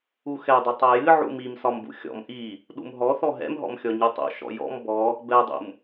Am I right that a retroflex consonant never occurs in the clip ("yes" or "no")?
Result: yes